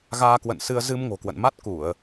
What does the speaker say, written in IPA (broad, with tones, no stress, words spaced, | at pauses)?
ɣaː˧kwə̰˧˨nsɨ˧ə̯ zɨ˧mŋo̤˨˩kwə̰˧˨nma˦˥t̚ ku˧˩˨ə̯